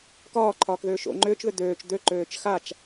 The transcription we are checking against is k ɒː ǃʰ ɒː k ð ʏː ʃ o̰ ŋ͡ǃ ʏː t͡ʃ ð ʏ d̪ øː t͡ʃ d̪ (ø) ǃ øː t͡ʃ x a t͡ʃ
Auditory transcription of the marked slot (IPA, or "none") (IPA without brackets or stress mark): ø